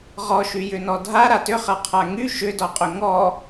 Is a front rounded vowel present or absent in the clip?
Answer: present